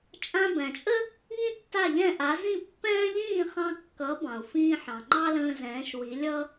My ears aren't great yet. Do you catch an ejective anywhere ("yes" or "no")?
yes